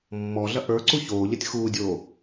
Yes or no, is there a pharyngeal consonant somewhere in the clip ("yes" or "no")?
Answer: no